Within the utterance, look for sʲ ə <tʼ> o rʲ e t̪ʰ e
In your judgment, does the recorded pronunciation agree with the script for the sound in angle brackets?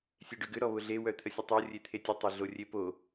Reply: no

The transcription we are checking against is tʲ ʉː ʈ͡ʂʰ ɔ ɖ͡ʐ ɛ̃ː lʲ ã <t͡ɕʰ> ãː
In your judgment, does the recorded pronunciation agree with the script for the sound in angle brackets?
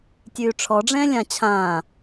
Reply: yes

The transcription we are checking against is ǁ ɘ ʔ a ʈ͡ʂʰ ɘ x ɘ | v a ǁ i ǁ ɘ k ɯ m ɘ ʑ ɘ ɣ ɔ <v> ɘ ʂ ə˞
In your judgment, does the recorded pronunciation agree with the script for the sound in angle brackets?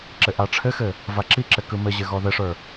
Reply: no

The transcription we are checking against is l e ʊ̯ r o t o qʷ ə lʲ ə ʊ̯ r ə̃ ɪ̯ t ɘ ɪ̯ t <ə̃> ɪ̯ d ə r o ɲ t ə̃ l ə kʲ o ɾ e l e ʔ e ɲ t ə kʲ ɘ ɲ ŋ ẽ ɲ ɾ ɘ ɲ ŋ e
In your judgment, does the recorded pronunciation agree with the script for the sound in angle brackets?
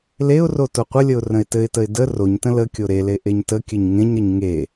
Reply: no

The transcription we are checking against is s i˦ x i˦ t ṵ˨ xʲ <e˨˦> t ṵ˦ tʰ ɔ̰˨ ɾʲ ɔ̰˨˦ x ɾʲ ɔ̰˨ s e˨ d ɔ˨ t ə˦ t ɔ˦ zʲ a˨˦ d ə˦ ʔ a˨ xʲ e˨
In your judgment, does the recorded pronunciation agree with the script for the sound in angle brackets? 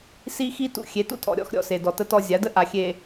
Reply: yes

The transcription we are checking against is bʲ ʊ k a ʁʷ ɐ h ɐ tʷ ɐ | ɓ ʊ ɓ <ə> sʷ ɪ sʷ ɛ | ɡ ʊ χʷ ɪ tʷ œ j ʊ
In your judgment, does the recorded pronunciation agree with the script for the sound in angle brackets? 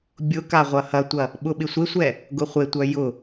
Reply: no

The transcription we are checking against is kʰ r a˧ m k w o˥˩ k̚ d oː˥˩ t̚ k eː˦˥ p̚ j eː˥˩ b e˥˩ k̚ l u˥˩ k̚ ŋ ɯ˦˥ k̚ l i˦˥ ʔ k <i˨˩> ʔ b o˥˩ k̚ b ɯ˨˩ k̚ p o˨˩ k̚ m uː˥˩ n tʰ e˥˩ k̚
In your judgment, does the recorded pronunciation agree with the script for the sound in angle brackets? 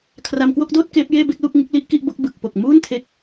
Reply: no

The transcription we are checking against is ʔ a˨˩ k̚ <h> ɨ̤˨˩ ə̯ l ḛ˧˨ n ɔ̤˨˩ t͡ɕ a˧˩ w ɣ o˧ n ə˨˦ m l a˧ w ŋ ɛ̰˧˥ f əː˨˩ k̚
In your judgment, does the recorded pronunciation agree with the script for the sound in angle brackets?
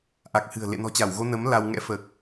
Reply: yes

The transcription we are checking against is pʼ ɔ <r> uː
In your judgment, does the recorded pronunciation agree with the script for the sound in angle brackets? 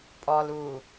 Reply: no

